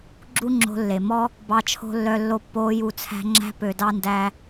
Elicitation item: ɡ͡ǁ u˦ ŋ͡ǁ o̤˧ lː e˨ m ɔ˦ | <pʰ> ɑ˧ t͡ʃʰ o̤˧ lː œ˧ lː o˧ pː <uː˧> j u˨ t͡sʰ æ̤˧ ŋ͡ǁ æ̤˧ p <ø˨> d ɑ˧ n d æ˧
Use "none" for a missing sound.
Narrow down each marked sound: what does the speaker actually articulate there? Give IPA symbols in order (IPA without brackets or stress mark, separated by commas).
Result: b, oː˧, ø˨